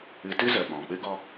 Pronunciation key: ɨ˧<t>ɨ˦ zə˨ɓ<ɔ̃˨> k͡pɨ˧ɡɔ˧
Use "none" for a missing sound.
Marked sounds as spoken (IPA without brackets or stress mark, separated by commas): t, ɔ̃˨